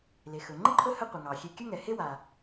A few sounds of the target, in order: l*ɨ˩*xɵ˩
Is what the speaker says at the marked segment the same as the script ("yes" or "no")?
no